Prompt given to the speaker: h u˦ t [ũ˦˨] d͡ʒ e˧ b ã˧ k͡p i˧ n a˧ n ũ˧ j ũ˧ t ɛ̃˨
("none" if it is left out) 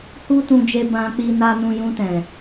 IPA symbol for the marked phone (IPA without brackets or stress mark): ũ˧